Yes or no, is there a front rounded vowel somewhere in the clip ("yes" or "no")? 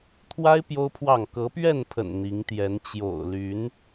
yes